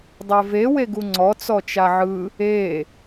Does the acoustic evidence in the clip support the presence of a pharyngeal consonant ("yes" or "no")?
yes